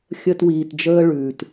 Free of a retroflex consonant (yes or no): no